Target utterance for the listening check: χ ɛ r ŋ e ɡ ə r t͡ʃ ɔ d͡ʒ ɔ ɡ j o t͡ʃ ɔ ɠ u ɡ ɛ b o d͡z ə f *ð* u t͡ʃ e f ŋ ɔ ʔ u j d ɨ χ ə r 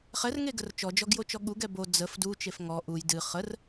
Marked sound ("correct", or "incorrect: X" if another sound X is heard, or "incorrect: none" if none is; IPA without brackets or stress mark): incorrect: d